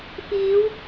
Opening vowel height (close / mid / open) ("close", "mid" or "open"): close